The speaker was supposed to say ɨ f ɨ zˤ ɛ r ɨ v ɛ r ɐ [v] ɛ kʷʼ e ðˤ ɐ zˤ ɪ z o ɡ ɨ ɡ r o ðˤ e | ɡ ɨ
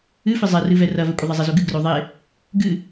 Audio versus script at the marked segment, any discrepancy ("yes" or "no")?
no